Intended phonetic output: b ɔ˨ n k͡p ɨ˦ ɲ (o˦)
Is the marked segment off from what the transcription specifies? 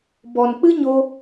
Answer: no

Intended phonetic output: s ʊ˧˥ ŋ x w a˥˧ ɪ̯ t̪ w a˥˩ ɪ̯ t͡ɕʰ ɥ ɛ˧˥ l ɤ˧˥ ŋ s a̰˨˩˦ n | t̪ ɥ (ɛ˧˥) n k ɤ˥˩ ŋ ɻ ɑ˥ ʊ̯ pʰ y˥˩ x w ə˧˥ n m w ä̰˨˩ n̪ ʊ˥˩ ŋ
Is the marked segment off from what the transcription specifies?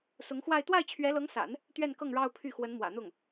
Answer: yes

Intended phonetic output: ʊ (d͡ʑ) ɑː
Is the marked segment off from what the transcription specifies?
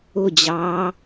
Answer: no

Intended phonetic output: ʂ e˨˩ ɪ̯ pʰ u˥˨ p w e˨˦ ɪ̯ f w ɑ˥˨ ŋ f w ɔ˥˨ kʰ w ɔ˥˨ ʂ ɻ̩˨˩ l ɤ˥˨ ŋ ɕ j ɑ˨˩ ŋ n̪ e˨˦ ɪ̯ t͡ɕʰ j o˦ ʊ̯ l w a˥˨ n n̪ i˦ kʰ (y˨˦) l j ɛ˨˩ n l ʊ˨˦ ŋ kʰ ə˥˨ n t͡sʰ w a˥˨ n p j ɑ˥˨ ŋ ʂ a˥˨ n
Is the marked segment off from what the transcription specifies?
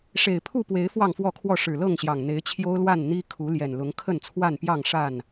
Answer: yes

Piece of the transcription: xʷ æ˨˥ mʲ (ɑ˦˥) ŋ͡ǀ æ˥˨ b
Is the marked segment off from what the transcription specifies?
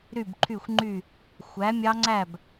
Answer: no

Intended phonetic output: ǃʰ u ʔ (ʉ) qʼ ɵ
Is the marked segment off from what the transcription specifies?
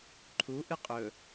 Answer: yes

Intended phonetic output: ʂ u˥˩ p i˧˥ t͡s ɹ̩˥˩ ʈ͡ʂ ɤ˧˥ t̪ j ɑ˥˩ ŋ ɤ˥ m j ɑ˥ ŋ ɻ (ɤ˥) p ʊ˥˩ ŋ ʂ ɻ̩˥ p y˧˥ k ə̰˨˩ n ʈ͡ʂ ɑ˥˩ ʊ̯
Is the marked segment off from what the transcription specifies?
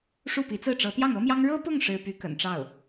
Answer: no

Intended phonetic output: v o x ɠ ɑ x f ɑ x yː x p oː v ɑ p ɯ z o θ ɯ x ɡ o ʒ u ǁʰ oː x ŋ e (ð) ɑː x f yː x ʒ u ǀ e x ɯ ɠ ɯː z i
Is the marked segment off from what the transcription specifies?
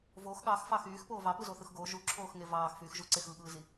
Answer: yes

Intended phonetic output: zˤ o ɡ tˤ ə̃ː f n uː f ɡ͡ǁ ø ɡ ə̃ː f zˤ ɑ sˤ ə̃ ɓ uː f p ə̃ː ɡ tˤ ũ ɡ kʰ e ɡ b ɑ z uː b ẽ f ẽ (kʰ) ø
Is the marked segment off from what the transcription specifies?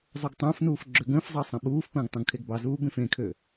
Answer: no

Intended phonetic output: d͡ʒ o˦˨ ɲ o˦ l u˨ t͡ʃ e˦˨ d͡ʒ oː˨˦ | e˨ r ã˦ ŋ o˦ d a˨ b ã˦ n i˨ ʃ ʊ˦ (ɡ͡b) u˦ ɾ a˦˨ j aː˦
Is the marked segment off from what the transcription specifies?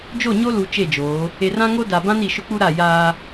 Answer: yes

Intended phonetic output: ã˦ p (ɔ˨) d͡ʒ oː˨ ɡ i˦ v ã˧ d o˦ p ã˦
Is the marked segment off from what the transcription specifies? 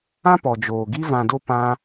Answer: no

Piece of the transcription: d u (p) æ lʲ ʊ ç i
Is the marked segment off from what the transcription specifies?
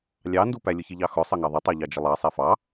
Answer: no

